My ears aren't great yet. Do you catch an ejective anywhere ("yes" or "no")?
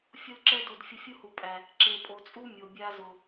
yes